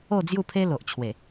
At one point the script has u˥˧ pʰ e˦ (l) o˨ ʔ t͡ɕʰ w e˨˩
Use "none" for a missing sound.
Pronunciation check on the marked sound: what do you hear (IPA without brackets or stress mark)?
l